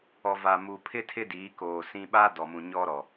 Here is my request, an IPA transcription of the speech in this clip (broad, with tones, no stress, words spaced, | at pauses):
ɔ˨va˨ mu˨pʰɪ˦ tʰɪ˦diː˨˦koː˨sĩ˦ ɓa˦ dɔ˨mũ˨ɲɔ˦ɾɔ˨